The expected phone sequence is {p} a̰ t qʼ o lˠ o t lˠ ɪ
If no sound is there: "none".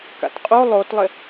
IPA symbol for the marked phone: k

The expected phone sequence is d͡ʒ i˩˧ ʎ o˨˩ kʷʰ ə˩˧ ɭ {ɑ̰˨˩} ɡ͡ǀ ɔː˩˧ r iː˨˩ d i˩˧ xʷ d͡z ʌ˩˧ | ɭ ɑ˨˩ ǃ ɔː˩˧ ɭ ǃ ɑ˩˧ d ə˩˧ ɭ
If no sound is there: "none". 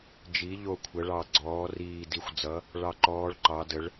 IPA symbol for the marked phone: ɑ˨˩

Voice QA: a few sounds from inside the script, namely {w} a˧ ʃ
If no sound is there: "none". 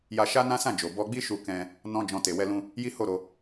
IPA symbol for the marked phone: j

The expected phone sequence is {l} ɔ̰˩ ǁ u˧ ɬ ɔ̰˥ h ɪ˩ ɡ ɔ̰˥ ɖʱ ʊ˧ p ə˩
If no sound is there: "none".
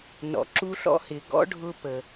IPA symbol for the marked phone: n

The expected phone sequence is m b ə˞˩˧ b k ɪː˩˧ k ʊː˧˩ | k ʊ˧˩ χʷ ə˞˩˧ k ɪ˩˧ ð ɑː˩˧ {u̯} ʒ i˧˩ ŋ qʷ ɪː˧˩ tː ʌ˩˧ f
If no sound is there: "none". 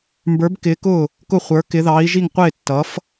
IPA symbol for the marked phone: i̯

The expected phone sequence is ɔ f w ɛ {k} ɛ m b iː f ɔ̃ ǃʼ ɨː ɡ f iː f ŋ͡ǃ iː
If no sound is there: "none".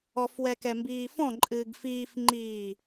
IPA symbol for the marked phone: k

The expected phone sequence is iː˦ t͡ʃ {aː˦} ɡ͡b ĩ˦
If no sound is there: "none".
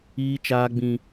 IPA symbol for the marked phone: aː˦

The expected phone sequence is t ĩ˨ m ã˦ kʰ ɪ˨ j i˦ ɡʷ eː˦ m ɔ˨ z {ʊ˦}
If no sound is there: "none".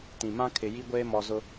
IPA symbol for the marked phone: ʊ˦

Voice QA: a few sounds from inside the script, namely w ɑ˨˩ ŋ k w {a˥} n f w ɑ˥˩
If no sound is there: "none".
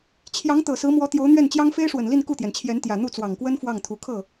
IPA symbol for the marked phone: ə˥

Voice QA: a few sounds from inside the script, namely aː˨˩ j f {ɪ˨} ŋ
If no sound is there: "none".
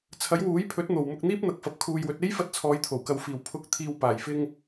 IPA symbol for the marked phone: ɪ˧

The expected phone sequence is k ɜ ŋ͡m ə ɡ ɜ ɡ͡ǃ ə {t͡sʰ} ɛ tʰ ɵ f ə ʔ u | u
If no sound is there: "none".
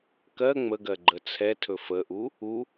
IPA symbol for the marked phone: t͡sʰ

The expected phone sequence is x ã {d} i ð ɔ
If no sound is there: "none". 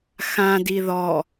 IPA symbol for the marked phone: d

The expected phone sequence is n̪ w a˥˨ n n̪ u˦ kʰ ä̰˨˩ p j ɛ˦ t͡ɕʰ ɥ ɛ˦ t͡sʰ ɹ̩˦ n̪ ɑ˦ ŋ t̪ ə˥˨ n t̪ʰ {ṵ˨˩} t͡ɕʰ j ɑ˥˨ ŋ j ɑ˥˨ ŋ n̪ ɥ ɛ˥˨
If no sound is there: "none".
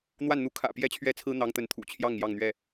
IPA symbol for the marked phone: ṵ˨˩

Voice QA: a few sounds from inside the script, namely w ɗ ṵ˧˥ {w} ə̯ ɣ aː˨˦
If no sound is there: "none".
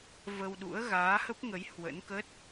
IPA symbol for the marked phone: none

